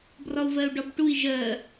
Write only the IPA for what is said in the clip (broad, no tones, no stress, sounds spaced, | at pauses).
b r ɒ u̯ v ɜ u̯ ɖ ɒ b ʈ u i̯ ʒ ɜ